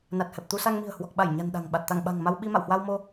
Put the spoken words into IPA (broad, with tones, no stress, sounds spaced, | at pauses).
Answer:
n a˨˩ t̚ h ɛ˨˩ p̚ t̪ u˧ s a˧ ŋ m i̤˨˩ ə̯ h w ɔ˨˩ k̚ ɓ a˧˩ j ɲ a̤˨˩ n ɗ a̤˨˩ ŋ ɓ a˨˩ t̚ t̪ a˧˩ ŋ ɓ a̤˨˩ ŋ m a˧ w ɓ i˧ m a̰˧˨ w h w a˧ w m o˧